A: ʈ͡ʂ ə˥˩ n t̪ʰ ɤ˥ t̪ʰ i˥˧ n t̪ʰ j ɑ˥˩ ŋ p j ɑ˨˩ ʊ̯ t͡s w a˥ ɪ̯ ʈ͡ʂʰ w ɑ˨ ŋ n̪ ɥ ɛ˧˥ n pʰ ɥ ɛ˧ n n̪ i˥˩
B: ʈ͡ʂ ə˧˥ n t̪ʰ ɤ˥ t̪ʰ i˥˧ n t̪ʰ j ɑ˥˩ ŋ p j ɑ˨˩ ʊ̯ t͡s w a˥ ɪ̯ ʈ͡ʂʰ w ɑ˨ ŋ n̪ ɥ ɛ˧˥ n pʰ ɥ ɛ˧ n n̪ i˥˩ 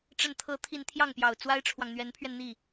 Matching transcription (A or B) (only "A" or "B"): A